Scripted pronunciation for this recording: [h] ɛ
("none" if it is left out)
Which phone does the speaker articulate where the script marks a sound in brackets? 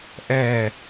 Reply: ʔ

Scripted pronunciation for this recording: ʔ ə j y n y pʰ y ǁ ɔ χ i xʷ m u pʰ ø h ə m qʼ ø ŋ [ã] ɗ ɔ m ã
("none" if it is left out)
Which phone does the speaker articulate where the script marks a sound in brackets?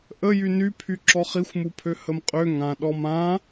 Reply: ã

